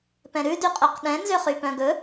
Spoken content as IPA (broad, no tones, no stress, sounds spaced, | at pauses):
p ɛ̃ ɾ ʉ d y qʼ œ q ɗ ɛ̃ n z ø χ y p œ̃ ɡ ɵ